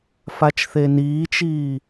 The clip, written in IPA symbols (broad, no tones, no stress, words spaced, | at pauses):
fat͡ʃθeniːt͡ʃiː